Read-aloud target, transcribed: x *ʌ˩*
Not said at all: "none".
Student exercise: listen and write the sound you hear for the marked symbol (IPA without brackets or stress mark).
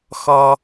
ʌ˩